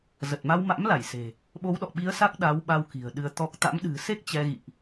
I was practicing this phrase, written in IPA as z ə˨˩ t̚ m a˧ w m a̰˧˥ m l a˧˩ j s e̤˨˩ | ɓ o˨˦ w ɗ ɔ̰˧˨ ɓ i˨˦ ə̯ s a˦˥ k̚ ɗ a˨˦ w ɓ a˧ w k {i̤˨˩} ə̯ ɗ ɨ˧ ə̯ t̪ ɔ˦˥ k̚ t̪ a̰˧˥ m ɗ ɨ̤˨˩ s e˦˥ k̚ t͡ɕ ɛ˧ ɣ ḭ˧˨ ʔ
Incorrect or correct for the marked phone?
correct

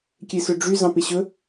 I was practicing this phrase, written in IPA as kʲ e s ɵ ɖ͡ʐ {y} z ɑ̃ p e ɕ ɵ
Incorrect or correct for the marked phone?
correct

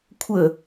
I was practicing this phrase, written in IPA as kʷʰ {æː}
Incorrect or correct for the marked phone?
incorrect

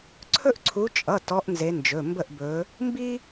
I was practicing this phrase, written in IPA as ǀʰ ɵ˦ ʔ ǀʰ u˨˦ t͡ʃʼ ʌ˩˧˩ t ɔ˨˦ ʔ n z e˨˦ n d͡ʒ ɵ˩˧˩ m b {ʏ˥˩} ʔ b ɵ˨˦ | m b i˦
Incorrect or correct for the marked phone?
incorrect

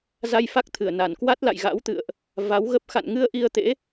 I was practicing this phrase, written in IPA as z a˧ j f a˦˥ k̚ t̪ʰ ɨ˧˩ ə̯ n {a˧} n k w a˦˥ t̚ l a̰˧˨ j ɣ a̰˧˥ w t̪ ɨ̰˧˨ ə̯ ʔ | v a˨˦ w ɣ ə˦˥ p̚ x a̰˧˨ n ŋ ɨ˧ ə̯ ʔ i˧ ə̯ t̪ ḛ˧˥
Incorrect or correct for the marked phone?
incorrect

